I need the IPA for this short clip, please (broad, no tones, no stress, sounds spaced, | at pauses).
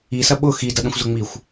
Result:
i s ɐ ɓ ʊ x i d ɐ ɗ ə̃ xʷ z ʊ ŋ͡m i xʷ